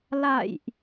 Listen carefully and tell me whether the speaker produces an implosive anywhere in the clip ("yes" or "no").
no